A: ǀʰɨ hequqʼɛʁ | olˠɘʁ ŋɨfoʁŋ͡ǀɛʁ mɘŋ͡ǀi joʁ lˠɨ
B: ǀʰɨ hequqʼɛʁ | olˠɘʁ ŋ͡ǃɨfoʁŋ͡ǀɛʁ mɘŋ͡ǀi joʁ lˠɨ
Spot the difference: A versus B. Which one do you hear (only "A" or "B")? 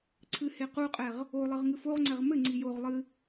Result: A